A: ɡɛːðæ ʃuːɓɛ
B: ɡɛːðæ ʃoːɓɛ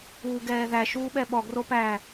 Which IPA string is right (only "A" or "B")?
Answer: A